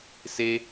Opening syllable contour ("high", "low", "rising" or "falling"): high